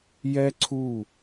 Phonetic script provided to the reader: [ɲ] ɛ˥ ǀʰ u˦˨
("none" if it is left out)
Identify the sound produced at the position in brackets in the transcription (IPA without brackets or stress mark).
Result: j